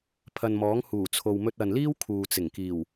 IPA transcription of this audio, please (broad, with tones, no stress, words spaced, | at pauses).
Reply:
pʰɐ˨nmɔː˨˥ŋ huː˨˩t͡sʰo˨wmɵ˧t̚ ɐ˨nliː˥w kʰuː˨ t͡sɪ˨˩ŋkiː˨˩w